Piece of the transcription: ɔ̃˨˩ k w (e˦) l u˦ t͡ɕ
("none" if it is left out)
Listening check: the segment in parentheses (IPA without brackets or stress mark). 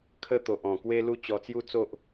e˦